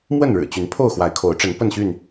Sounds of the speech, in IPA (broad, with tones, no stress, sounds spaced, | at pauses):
m w ə˥˨ n ɻ ɻ̩˨˩ t͡ɕ y˨˦ n pʰ o˥˨ ʊ̯ x w a˨˦ ɪ̯ kʰ o˨˦ ʊ̯ ʈ͡ʂ ə˨˦ n p ə˥˨ n ɕ y˥˨ n